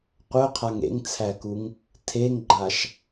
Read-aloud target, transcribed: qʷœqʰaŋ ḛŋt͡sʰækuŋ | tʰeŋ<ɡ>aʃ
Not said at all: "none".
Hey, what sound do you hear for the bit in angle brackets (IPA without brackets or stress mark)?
ɡ͡ǃ